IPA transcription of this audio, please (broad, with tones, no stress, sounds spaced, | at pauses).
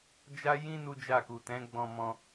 d͡ʒ a˦ j ĩ˦ n u˦ d͡ʒ a˦˨ k u˨ t ɛ̃˨˦ ɡ͡b ɔ̃˧ m ɔ̃˧